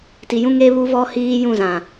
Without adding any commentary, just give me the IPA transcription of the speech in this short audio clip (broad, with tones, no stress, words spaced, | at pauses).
ti˨jũ˦ ŋe˦βu˦vɔ˦hiː˦ jũ˦˨zã˨